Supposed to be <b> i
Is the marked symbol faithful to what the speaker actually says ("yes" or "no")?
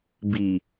yes